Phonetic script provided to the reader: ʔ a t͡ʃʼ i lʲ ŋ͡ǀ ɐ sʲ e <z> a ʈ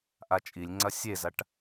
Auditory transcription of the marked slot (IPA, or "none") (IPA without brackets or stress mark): z